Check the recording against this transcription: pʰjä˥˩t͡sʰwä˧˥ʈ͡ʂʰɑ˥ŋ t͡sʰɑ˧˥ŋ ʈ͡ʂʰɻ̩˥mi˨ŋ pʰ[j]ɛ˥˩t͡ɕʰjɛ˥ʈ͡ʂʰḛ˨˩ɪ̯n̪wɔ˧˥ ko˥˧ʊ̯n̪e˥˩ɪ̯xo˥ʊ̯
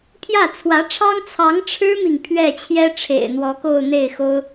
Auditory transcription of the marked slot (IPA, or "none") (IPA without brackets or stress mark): ɥ